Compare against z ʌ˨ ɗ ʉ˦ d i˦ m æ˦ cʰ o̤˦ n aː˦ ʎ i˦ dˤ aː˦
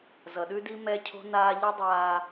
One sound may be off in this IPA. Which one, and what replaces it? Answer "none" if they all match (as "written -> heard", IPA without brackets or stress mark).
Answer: æ˦ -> ɛ˦